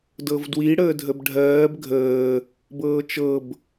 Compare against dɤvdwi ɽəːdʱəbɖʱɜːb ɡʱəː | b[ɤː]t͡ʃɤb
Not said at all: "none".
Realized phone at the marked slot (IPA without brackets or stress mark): ɤː